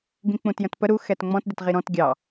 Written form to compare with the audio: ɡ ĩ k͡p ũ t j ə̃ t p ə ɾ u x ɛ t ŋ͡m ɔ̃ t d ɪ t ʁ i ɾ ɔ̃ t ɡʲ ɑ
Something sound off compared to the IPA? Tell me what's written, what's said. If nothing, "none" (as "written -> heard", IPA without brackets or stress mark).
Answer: none